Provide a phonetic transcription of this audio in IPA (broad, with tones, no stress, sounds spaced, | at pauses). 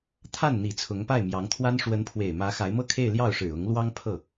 t̪ʰ a˥˩ n n̪ i˨˩ t͡sʰ ʊ˧˥ ŋ p a˥˩ ɪ̯ m j ɑ˧˥ ŋ t̪ʰ w a˥ n ʂ w ə˧˥ n pʰ w e˨˩ ɪ̯ m ä˧˥ x a˧˥ ɪ̯ m ɤ˥ kʰ e˥˧ ɪ̯ l j ɑ˥˩ ʊ̯ ʂ ɻ̩˨˩ ʊ˧˥ ŋ l w ɑ˥ ŋ pʰ ɤ˥˩